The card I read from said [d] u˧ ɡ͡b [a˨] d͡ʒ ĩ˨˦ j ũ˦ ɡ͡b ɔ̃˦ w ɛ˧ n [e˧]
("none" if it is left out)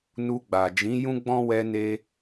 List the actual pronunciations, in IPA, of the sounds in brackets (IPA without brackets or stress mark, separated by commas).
n, a˨, e˧